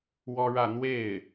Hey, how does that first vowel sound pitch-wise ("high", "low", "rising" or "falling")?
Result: high